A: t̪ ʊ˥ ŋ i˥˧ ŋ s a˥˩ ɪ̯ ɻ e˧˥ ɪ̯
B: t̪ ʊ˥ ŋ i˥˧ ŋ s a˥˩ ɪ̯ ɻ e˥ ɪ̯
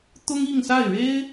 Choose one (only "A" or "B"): B